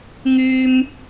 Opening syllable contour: high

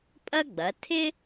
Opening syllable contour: high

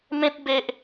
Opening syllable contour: high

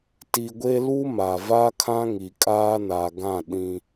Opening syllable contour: low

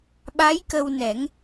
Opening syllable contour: rising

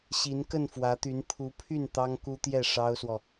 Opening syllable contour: rising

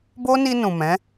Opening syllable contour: high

